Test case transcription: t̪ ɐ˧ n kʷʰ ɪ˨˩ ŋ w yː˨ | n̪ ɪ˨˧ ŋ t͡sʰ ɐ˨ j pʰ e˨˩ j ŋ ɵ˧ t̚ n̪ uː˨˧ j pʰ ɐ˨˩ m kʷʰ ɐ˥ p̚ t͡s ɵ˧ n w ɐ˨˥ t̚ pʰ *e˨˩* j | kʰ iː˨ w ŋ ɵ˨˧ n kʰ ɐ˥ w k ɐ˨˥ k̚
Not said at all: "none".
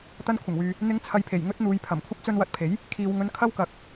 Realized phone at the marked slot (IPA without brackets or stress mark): e˨˥